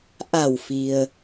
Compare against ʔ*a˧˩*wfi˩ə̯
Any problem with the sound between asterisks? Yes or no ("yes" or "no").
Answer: no